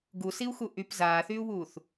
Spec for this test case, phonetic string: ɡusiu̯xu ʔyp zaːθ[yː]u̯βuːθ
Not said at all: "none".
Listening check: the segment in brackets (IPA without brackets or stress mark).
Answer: yː